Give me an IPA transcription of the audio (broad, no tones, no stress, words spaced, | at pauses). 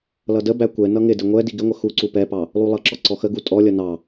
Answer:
lʌdəbæ kʷɛ nʌŋɪdɪ ŋʷɛ diɡɪŋʷə xuǀu pɛpɑ | lˠulˠʌǁɔ ǀɔxəɡu tʼɔlʲʌ nɑ